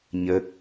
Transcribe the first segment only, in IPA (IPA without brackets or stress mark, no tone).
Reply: ɲ